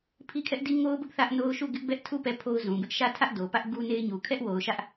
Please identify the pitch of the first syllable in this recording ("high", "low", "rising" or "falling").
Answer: high